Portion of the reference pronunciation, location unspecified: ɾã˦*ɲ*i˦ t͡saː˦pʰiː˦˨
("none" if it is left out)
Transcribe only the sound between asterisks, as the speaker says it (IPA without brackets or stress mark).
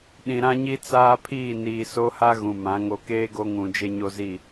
ɲ